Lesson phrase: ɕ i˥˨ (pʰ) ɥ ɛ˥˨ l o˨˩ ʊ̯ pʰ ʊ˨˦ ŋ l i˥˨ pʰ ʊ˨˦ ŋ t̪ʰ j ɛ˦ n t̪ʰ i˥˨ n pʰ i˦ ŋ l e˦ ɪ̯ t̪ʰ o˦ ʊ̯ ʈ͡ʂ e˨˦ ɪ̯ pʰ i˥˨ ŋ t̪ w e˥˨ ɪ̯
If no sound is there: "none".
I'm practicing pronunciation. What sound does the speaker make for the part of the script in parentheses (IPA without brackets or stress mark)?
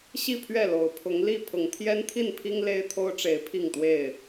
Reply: pʰ